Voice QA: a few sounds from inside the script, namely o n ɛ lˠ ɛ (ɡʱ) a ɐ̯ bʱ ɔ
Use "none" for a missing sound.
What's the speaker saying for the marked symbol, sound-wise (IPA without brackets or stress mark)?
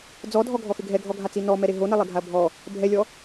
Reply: ɡʱ